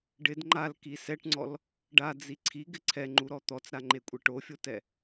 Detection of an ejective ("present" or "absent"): present